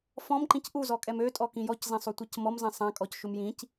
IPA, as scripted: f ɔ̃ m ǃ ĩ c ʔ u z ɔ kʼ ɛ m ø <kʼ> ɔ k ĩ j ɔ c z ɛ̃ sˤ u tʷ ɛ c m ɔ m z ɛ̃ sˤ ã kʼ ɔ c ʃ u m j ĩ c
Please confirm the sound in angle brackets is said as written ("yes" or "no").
no